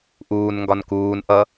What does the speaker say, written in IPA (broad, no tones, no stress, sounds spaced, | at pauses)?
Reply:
ʔ uː n ŋ ɡ ɒ n k uː n ʔ ʌ